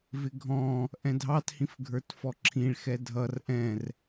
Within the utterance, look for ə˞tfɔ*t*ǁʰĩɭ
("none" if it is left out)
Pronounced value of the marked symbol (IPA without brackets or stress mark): none